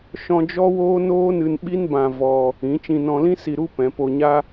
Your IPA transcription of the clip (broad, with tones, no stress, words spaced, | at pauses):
ʃɔ̃˧d͡ʒɔ˦woː˦ noː˦nɨ˧nɓi˦nbã˧ vɔ˧ | ĩ˨˦t͡ʃĩ˧ nɔ̃˧lĩ˦ si˧ɾu˦pɛ̃˨˦ po˧ɲa˦